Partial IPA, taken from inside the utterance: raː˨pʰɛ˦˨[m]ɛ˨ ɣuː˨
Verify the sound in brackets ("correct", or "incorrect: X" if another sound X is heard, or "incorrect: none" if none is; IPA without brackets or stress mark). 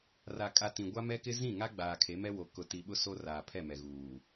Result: correct